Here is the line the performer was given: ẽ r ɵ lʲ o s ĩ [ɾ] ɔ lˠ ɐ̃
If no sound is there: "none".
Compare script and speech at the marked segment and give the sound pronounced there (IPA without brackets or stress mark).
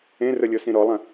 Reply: ɾ